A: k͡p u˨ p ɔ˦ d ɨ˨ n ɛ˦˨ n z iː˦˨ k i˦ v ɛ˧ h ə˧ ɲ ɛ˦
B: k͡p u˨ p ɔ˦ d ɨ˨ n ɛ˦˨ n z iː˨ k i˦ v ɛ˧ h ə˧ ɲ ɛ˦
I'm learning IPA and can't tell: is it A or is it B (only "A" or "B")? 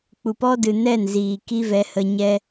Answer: B